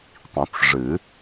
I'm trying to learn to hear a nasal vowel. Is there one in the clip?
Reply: yes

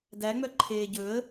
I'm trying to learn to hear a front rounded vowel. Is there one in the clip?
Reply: yes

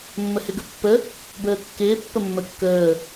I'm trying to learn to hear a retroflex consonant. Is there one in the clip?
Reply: no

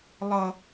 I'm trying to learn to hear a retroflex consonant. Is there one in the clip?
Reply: no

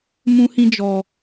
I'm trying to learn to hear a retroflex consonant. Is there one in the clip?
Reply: no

